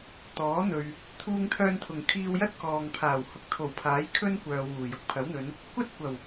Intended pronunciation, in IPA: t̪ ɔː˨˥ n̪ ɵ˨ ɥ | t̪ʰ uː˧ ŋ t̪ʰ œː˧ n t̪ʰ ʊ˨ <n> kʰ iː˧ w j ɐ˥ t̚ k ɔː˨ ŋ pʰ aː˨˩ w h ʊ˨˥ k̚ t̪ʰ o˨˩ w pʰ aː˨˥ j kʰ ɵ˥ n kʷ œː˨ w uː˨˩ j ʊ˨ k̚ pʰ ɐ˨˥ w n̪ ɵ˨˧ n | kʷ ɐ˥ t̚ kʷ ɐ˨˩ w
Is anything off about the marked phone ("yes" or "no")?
yes